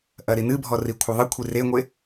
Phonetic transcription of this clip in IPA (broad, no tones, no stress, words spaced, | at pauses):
ʔɐɾinɨbʱɔ rikʷʰɘðˤɨkʷʰi reŋʷe